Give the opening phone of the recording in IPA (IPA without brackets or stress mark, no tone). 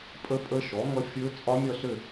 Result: pʼ